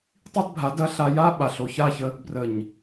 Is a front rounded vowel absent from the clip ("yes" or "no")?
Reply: yes